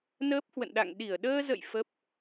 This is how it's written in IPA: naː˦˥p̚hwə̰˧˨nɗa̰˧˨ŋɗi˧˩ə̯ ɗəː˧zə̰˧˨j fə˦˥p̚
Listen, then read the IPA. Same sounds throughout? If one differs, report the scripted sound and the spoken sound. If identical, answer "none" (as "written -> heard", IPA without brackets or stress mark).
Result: aː˦˥ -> əː˦˥